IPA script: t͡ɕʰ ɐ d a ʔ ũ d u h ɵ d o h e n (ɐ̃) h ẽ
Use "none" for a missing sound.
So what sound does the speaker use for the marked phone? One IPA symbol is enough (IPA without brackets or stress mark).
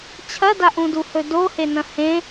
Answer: ɐ̃